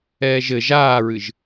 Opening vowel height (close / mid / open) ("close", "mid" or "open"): mid